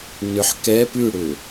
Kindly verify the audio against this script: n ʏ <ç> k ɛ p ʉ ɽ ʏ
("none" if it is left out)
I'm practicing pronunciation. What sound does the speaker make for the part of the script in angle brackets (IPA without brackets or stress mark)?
ħ